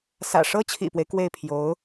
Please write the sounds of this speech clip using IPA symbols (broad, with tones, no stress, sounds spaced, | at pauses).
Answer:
s ä̰˨˩ ʂ ɤ˥ t͡ɕʰ ḭ˨˩ p w e˦ ɪ̯ k w e˥˩ ɪ̯ pʰ j o˧˥ ʊ̯